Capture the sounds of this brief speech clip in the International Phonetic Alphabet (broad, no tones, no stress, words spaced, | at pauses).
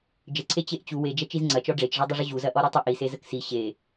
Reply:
d͡ʒəǀʰe t͡ɕeʔt͡ɕu wed͡ʒɐ t͡ʃizŋ͡ǀɐt͡ʃɔ ɖ͡ʐet͡ʃʐɔdˤəʐə ʑuzɐʔɔ ɾɔtˤə ʔise zəksi ɕe